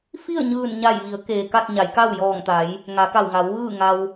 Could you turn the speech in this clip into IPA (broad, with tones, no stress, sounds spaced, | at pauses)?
f i˥˨ ə̯ ɲ ɯː˧˩ n ɲ a˧˩ j ʋ i˩˧ ə̯ k eː˩ k a˥˨ t̚ ɲ a˩˧ j k a˥˨ w j ɔː˧˩ ŋ t̪ a˩˧ j | ŋ a˩˧ k a˧˩ w ŋ a˩˧ w ʋ ɯː˥˨ ŋ a˧ w